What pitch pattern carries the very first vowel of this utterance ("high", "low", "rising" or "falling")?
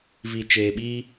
low